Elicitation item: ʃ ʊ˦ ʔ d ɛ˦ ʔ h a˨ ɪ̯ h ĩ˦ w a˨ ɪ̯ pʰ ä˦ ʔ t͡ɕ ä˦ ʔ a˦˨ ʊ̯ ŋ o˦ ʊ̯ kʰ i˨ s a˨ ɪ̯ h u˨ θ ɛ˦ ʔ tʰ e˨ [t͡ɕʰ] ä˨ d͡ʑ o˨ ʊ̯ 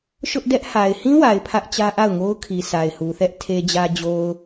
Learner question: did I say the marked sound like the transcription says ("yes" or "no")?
no